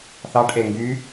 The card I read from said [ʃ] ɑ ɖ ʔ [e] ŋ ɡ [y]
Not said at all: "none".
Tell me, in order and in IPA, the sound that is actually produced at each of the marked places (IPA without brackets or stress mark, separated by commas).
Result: θ, e, y